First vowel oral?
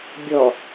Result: yes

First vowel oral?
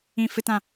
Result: no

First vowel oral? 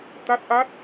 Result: yes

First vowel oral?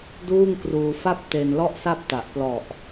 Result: yes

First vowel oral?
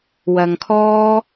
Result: yes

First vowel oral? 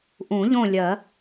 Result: no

